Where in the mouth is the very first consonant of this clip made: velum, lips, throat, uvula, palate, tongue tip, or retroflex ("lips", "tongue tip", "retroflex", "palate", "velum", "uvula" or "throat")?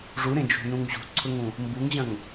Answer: retroflex